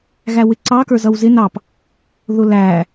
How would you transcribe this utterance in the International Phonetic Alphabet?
ɣ æ w ɪ ǀ ɑ k ə˞ z ʌ w z ɪ n ɑ p | ð ʊ l æ

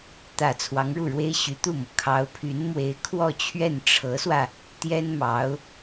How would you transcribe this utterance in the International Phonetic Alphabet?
t̪ ä˨˩ t͡sʰ w ɑ˧˥ ŋ ɻ u˥˩ ɻ w e˥ ɪ̯ ɕ y˧˥ t̪ u˥˩ m ɤ˩ kʰ ɑ˧˥ ʊ̯ pʰ y˧˥ n m w e˧˥ ɪ̯ kʰ w ɔ˥˧ t͡ɕʰ ɥ ɛ˥˩ n ʈ͡ʂʰ ɤ˧˥ s w ä˧ | t̪ j ɛ˥ n m ɑ˧˥ ʊ̯

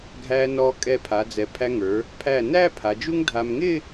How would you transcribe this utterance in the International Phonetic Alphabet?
ɡʱ æ˧ n ɔ˧ kʼ ɛ˧˩ pʰ a˩˧ d͡z ɛ˩˧ pʰ æ˧ ŋ ə˞˩˧ | pʰ æ˧˩ n æ˥˧ pʰ a˩˧ d͡ʒ u˥ ŋ dʱ a˧ m ŋ ɪ˥˧

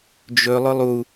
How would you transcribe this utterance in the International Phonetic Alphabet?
d͡ʒ ɵ lˠ ʊ lˠ u

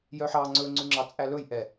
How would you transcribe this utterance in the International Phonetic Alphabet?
j œ ħ ɑ ŋ͡ǀ ɵ ŋ͡ǀ ʉ ŋ͡ǁ ɑ t͡sʼ æ l ɵ j ʔ ɛ

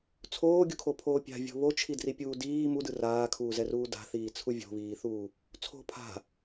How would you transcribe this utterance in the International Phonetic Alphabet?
t͡sʰ oː ɡʲ u kʰ o pʰ oː pʲ a̤ vʲ o̤ β o t͡ʃʰ i d r i pʲ uː d iː m u d ɯ r aː kʰ uː z ɛ r uː d a̤ θ iː t͡sʰ u vʲ o̤ β iː θ uː | t͡sʰ o̤ pʰ a̤

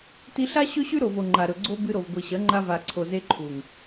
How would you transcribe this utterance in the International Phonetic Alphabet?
t i˧ ɬ a˦ ɕ ɵ˦ ɕ ʉ˦ ɾ o˨ v o˨ ŋ͡ǃ a˨ ɾ ɵ˨ ɡ͡ǀ o˦ b ɨ˧ ɾ o˨ v ɡʷ i˨ ɕ ɐ˨˦ ŋ͡ǃ a˧ v a˨ ǀʰ o˨ z e˧ ǃʰ u˨ ŋ

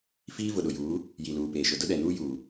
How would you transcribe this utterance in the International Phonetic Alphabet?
f iː˦ v ʊ˨ ɗ ʊ˨ j uː˨˦ | j i˨ l uː˨ p eː˨ ʃ ʊ˨ d ʊ˦ ɗ ɛ˨ n uː˦ j uː˨

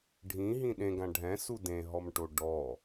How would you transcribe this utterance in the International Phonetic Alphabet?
ɖʱ ĩ ɦ ĩ ɗ ẽ ɡ ã ɖʱ ɛ̃ s u d ẽ ɦ ɔ m ʈ o ɖ ɔ

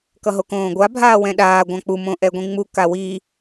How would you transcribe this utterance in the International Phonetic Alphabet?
k ʌ ɦ o k õː ɡʷ a bʱ aː w ɛ̃ ɗ aː ɡʷ ã k͡p u m õ ʔ ɛ ɡʷ ĩ ŋ͡m u k a w i

